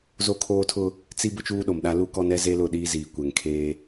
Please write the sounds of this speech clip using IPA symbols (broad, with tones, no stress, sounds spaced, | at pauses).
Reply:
z o˦ kʰ oː˦ tʰ ʊ˦ | t͡s i˦ b ʊ˦ t͡ʃ uː˦ ɗ o˨ m ɗ a˦ l u˦ k ɔ˦ n ɛ˦ z e˦ l ʊ˦˨ ɗ iː˦ z iː˨ kʷ ɛ˨ ŋ kʰ eː˦